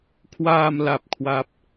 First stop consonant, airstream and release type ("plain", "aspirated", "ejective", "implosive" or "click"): aspirated